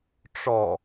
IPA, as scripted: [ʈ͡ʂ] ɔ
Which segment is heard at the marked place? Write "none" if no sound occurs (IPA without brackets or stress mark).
ʈ͡ʂ